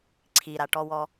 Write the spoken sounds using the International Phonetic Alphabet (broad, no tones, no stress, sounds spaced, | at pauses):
ǀʰ i ɾ a ʈ ɔ w ɔ